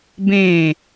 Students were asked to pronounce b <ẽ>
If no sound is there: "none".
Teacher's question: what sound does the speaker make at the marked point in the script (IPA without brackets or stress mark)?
ẽ